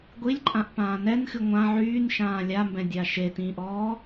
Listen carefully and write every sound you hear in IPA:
ɡʷ i lʲ ǃʼ ã ʔ p ãː n ɛ n x ɨ ŋʷ ã ʕ yː n ʃ ãː lʲ a m b ɛ̃ dʲ a ʃ e t ĩː ʔ ɔː

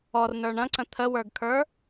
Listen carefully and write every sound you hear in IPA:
ɔ r n ə˞ ɳ ɐ̃ ǀ ə̃ t̪ʰ ə w ə˞ ɡ kʰ ə˞

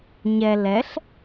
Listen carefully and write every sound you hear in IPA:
ɲ ɛ l ɛ ɬ

